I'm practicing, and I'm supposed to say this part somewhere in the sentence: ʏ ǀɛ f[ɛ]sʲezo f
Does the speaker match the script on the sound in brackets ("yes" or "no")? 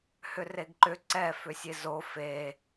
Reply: no